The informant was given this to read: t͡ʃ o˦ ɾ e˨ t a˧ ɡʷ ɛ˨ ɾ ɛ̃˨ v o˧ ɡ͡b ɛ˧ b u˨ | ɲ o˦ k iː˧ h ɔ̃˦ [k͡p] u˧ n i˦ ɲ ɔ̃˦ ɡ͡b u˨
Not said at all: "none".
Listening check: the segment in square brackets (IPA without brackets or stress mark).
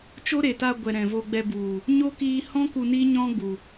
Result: k